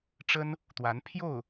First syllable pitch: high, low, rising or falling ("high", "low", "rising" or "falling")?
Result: high